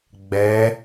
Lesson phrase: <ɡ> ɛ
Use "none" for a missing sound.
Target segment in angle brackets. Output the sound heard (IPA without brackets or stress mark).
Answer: ɡ͡b